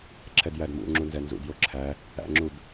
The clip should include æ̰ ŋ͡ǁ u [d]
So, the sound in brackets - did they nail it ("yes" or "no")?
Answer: yes